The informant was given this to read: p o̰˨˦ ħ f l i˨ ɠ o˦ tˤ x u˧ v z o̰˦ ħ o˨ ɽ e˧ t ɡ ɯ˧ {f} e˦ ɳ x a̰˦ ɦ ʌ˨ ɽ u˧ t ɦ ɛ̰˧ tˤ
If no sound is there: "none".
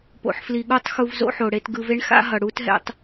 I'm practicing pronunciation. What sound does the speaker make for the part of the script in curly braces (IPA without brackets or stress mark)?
v